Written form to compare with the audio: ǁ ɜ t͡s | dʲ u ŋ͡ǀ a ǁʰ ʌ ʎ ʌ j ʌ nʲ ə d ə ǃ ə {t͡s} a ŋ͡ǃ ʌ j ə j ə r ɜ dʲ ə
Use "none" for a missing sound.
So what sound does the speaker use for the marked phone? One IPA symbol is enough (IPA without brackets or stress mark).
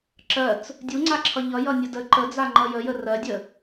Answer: d͡z